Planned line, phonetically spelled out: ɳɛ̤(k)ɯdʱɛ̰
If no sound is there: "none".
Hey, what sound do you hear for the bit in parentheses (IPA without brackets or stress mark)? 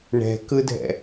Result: k